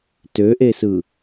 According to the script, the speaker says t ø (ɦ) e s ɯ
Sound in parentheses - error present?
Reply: yes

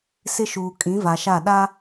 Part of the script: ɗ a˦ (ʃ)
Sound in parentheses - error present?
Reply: yes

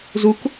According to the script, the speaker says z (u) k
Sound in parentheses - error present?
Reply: no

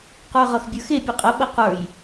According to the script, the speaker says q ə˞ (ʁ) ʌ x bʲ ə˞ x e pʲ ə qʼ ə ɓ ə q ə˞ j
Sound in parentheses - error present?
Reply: no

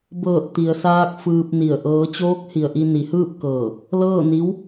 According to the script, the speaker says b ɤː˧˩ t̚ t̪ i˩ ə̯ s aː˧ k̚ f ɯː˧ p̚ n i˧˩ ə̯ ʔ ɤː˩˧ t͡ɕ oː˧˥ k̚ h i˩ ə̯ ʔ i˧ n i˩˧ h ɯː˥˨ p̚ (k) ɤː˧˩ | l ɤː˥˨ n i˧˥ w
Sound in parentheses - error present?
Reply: no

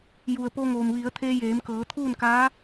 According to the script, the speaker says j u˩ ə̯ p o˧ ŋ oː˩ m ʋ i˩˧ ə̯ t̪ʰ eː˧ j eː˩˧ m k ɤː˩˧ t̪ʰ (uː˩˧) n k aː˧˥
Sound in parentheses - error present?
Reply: yes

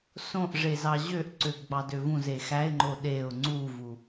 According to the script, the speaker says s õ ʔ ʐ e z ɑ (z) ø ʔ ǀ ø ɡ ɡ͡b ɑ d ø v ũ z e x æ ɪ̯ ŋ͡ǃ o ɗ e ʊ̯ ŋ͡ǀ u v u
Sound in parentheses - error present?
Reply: yes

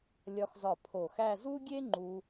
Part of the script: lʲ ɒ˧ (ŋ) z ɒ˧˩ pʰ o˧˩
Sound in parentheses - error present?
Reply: yes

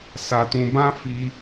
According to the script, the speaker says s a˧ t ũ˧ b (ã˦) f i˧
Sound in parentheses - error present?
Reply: no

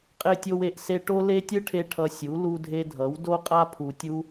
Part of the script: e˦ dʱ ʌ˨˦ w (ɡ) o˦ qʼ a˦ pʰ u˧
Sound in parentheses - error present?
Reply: yes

